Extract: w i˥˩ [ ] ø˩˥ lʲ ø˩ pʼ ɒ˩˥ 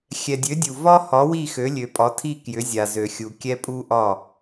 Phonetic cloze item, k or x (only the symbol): x